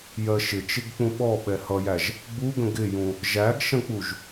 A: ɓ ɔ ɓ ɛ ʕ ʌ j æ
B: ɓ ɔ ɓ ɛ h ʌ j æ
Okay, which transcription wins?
B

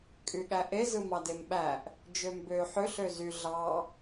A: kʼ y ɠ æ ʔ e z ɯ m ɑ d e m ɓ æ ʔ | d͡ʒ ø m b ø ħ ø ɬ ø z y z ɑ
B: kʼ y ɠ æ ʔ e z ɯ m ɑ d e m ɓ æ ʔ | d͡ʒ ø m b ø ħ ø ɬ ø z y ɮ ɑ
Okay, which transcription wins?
B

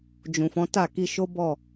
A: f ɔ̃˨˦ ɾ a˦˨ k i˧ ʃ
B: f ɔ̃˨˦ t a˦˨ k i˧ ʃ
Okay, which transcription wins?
B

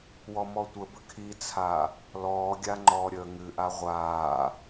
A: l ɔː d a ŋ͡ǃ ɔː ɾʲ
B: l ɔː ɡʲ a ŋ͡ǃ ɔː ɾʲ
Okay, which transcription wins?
B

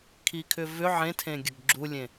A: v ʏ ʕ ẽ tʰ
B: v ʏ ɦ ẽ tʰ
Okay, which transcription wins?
A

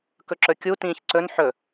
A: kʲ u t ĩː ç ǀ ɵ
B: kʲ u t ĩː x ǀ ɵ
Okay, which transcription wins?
A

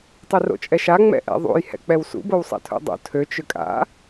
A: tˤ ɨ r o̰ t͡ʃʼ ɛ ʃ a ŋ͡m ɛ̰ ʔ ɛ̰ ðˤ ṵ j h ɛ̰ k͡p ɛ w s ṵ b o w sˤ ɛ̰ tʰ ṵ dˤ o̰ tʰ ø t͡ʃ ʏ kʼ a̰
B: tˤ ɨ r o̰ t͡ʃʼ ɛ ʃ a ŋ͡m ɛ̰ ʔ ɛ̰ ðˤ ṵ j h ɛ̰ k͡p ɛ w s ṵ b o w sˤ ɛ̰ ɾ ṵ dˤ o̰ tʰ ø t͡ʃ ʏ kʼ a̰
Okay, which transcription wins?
A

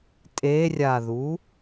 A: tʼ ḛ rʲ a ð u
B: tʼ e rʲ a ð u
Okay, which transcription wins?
B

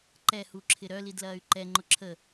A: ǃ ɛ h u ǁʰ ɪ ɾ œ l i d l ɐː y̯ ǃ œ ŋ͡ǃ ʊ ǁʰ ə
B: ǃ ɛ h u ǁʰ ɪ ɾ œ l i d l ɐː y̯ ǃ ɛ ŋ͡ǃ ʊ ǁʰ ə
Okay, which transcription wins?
B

